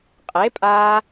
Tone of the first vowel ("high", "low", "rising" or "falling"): rising